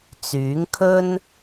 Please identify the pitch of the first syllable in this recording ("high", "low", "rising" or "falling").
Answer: rising